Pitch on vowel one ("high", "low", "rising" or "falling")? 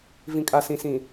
low